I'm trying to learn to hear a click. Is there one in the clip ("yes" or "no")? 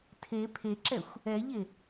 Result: yes